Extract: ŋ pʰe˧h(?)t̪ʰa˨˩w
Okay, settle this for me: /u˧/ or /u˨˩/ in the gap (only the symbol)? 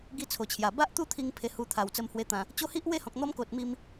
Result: u˧